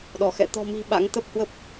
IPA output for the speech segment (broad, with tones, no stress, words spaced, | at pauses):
ɗɔ˧˩xɛ̰˧˨ t̪ɔ̤˨˩mi̤˨˩ ɓa̰˧˥ŋt̪ə˦˥p̚hwə˦˥p̚